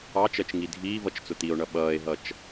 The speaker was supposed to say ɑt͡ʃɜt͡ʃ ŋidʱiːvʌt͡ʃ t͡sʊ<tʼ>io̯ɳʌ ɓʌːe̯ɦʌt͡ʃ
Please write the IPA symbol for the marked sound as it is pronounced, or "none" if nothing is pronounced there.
t̪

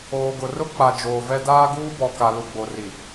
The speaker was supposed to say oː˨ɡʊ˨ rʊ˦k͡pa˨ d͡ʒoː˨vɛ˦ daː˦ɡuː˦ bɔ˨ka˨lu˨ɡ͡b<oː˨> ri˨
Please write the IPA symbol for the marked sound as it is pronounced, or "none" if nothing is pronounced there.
o˨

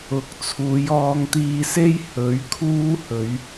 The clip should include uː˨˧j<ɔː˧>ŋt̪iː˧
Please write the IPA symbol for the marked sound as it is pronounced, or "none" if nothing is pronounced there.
ɔː˧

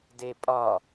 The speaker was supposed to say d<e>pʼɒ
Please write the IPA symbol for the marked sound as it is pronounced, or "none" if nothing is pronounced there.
e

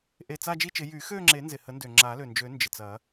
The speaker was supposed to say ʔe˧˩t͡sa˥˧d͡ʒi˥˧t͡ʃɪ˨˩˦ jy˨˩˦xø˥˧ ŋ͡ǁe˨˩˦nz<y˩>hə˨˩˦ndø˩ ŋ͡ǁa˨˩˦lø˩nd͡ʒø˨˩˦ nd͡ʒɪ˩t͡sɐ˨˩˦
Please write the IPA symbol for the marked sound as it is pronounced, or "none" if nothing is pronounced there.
ɪ˩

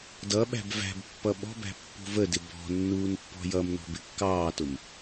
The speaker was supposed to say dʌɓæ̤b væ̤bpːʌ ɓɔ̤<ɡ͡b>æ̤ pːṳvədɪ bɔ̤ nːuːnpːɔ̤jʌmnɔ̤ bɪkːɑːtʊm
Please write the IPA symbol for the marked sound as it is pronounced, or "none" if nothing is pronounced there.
b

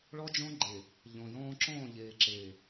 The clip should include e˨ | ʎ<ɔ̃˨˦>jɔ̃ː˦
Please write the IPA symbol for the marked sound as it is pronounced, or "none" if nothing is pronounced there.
ɔ̃˨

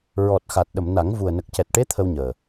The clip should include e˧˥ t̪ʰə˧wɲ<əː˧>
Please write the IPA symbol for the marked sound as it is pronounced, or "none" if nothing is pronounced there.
əː˨˩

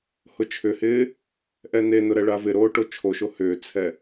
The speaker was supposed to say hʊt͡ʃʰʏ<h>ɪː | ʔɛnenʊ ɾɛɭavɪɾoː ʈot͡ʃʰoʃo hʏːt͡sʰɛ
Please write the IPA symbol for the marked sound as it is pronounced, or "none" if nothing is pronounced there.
h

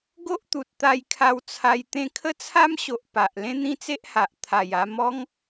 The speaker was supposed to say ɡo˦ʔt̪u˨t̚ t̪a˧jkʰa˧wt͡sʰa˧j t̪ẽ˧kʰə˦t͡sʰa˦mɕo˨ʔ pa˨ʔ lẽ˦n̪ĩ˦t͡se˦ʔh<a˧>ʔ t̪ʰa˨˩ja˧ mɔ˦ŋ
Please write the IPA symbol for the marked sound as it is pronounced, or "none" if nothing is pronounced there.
a˨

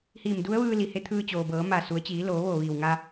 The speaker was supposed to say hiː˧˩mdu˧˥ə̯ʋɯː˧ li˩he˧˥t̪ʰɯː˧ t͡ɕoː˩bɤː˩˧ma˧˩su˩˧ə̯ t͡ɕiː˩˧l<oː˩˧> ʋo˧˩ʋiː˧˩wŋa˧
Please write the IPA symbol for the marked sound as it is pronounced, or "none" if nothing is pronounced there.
oː˩˧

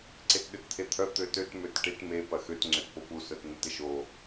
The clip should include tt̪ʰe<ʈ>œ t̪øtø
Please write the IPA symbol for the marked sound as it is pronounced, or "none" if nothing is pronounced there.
t̪ʰ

